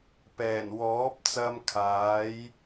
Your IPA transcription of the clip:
p ɛː˨˩ n w ɔː˨˥ p̚ t͡s ɐ˧ m kʰ aː˨˥ j

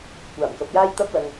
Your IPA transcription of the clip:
kʷ aː˨˩ m k ɐ˨ p̚ j aː˥ j t̪ ɐ˥ p̚ l ɐ˧ ŋ

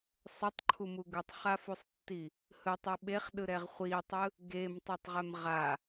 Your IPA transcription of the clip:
sˤ o tˤ ǃʰ u m u ɡ u tˤ χ a f u sˤ tː i | h ɯ tˤ e ɓ e χ ɗ ɯ ɾ ɛ ʁ χʷ i tˤ ɯ | ɡ e m tˤ i tˤ ʁ ɛ m ʁ a

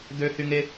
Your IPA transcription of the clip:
d̪ ø h y ŋ e

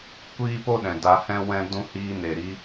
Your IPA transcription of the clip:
kʷ iː˦ p o˦ ɗ ɛ̃˨ d a˧ h ɛ̃˦ w ɛ̃˦ d ũ˦ h iː˧ n e˨ ɾ i˧

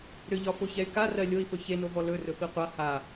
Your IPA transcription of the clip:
ɾ ʏ ʎ ɒ f o ç ɛ y̯ k a r ɜ lʲ o i̯ f ɵ ç e n o v ɔ l ɵ r ɵ f i qʷ a h a

